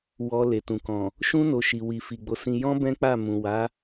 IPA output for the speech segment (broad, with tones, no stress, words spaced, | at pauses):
wɔ˧ le˨tũ˨kɔ̃˨ | ʃũ˦ no˧ʃi˨ wi˨fi˨ɡ͡bo˨˦sĩ˧ jɔ̃˦ bɛ̃˦k͡pa˦˨ mũ˨ wa˨˦